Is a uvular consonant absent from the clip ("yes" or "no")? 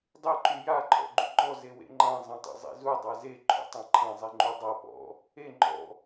yes